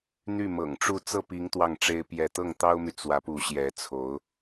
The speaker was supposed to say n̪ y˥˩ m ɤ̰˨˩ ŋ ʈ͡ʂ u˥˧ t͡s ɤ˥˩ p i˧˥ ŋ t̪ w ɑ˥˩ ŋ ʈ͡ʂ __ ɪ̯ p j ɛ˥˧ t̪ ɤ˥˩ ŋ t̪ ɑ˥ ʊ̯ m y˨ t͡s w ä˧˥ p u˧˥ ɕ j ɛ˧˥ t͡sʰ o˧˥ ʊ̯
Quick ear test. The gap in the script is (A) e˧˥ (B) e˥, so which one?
B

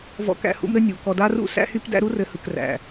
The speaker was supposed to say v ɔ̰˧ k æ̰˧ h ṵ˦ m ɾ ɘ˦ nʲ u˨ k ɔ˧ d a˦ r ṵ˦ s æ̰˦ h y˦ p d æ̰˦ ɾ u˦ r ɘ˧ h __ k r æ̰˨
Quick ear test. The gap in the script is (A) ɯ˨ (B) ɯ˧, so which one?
A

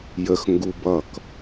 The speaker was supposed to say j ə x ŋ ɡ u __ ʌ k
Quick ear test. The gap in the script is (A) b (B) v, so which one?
A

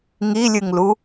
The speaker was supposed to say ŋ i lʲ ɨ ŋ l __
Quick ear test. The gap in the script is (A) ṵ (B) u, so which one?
B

